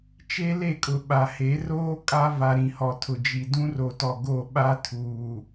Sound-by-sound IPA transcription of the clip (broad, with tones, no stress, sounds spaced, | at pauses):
t͡ʃ e˦ l e˦˨ kʼ ʊ˨ ɓ a˨ h e˨˦ r oː˦ kʼ a˦ v a˨ ɾ ĩ˨ h ɔ˨ tʰ ʊ˨ d͡ʒ i˨ d ũ˦ r o˨ t ɔ˨ ɡ o˦˨ ɓ a˦ tʰ uː˨